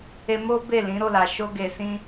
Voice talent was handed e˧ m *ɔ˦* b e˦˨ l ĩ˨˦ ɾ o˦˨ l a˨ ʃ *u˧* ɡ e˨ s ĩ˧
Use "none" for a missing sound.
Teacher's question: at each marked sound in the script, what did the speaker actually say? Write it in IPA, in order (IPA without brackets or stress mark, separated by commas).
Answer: o˦, o˧